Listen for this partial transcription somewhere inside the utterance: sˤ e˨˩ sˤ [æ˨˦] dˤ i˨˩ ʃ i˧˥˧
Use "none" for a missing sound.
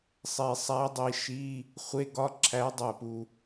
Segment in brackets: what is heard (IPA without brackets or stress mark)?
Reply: æ˨˦